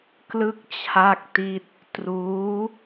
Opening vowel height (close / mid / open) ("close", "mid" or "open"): close